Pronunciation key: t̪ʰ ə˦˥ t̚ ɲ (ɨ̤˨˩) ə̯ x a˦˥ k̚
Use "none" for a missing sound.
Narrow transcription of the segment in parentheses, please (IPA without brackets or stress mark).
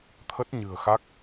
ɨ̤˨˩